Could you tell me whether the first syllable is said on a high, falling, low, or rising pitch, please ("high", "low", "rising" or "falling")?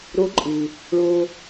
rising